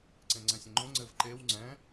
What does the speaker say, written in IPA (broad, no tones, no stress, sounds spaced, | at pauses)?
ǀ ẽ ŋ͡ǀ ɛ̃ sʲ ə̃ ŋ͡ǃ õ ŋ͡ǀ ɘ v ǃ e w ŋ͡ǀ ɛ̃